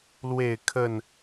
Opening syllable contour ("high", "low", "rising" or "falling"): falling